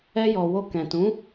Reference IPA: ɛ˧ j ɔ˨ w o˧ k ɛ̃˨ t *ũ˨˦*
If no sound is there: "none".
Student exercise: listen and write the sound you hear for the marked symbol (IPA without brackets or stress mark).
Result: ũ˨˦